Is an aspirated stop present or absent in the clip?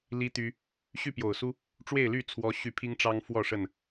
present